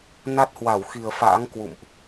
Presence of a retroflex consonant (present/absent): absent